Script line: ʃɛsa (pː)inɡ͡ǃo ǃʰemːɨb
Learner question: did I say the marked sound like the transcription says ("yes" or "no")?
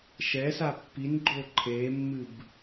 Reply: yes